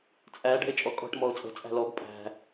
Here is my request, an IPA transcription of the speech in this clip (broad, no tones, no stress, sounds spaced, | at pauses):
t͡sʼ æ ɖ ɛ̤ ɪ̯ t͡ʃʼ ɔ kʼ ɔ̤ ʈ m ɔ ʊ̯ t͡sʼ ə̤ t͡sʼ æ̤ l ɔ ɡ pʼ æ̤